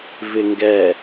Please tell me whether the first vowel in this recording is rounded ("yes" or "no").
no